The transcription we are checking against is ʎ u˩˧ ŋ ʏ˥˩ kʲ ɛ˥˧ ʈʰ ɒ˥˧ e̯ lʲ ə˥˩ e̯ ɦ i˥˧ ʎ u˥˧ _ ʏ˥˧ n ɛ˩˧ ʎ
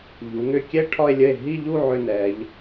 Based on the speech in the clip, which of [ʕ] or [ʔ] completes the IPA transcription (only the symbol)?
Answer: ʕ